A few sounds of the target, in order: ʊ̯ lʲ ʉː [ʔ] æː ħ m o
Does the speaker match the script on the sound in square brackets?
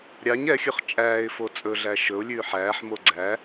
no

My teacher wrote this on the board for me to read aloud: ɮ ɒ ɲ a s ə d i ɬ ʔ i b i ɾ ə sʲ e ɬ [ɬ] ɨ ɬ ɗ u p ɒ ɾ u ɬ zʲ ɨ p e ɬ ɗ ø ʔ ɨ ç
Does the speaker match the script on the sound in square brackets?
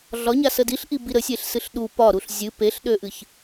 no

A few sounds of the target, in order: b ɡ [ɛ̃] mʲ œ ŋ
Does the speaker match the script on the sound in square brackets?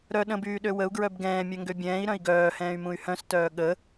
no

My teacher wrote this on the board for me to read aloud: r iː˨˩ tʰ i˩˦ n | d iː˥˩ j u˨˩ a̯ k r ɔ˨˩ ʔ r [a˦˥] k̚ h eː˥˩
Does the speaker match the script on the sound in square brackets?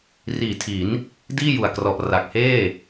no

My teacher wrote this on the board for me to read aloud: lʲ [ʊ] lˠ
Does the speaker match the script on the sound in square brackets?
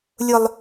yes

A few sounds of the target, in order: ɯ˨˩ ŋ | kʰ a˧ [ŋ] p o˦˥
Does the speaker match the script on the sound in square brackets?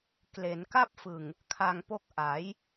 yes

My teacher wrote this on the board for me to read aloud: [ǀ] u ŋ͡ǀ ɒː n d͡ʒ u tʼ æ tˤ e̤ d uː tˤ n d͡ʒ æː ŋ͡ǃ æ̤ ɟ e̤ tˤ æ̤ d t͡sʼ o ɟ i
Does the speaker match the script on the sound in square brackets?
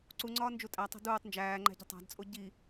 yes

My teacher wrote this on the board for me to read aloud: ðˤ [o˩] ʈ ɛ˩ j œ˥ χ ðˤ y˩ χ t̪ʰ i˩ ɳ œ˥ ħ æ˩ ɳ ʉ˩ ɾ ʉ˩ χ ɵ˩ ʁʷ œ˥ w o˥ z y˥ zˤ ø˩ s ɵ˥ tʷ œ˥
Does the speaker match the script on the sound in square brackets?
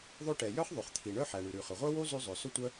no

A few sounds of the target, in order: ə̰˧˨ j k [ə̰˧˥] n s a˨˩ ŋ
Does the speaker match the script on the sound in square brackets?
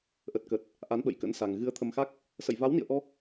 yes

